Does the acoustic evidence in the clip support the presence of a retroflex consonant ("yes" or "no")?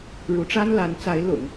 yes